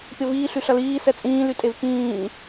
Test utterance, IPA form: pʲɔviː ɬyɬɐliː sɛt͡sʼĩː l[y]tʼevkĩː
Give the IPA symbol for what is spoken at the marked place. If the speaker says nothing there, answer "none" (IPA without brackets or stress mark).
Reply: y